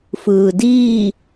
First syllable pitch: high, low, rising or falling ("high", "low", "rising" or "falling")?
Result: low